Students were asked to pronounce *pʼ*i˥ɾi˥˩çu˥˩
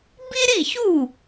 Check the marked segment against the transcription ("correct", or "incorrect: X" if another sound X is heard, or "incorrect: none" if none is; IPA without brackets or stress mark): incorrect: b